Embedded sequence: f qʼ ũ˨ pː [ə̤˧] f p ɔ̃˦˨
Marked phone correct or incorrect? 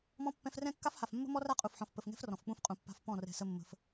incorrect